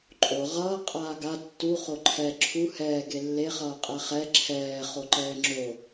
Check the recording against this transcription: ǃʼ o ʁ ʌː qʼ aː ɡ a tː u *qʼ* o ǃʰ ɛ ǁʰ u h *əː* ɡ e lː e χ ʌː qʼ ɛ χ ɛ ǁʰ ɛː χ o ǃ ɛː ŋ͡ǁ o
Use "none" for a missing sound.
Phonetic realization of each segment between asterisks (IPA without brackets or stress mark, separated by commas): χ, ɛː